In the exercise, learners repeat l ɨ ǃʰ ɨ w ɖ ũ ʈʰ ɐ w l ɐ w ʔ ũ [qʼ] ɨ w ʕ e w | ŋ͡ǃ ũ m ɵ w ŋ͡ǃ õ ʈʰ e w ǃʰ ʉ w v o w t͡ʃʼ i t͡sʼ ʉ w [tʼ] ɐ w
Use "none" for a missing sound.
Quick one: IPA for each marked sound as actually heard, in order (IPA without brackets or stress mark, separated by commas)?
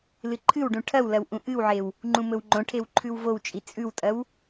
ʔ, tʼ